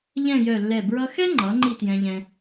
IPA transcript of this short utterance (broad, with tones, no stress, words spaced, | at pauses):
ʎɛ̃˥˧jœ˧˩lːɛ˧˩ bɹʌ˧xɛ˥ŋ͡ǃʌ˩˧ ŋ͡ǃi˥˧tjɛ̃˧ʎɛ̃˧